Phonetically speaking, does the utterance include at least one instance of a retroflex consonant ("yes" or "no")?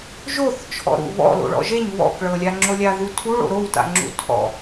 yes